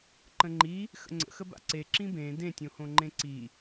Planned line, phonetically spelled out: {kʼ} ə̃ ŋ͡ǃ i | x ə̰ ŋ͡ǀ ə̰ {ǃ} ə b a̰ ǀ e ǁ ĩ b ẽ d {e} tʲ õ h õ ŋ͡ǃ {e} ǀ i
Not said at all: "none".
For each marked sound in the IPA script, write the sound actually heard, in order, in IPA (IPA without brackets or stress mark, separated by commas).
ǃ, x, ẽ, ẽ